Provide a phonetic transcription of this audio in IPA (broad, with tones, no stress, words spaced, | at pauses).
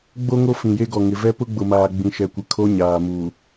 ɡ͡bo˦ŋo˦ fĩ˨je˦ɡɔ˨ŋɪ˨ vɛ˦pʊ˦ɡ͡bʊ˨maː˨ ɡ͡bĩ˨ʃɛ˨kʷɪ˨ kʰo˦ɲaː˨muː˨